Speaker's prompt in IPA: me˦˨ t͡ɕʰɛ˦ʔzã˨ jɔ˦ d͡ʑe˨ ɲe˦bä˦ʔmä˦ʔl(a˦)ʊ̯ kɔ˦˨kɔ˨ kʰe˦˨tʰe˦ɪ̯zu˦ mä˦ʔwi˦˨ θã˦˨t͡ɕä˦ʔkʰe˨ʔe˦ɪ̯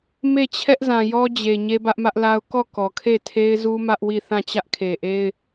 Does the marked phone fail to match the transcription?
no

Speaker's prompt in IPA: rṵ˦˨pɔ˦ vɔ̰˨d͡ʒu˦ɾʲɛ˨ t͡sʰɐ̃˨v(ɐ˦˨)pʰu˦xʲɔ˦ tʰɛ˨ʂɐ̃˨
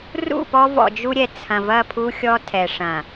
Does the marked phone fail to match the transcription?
no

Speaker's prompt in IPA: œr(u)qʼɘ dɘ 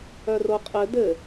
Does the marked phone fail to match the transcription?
yes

